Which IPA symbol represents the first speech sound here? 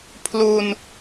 pʰ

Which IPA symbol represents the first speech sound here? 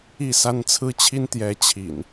i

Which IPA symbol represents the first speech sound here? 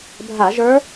bʱ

